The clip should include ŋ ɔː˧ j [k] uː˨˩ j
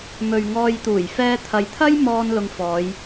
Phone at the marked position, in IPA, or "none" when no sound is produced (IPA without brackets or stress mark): t̪